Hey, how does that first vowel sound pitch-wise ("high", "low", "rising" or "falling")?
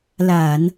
low